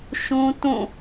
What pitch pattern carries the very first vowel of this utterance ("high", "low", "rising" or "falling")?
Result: high